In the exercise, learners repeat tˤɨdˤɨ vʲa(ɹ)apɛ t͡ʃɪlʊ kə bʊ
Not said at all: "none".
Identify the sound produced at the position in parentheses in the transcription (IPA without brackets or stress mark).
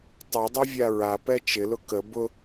ɹ